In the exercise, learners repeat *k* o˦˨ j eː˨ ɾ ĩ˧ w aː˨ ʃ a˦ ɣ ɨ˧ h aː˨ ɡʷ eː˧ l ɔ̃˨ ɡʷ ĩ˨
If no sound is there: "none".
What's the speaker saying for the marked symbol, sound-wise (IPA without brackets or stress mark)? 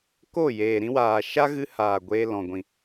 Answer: k